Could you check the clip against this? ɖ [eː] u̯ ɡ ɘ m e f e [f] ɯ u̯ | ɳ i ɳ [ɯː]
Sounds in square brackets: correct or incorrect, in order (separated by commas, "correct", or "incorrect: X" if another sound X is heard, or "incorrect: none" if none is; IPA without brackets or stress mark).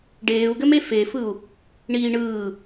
correct, correct, correct